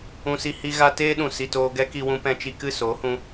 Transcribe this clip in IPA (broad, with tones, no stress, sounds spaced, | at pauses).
ũ˧ s i˧ h i˧ ɣ a˦ t eː˦ ɗ ũ˨ s i˨ t oː˧ ɡ ɛ˦ k i˧ w ũ˧ p ɛ̃˧ t͡ʃ i˧ k ɨ˦˨ s oː˨˦ h ũ˧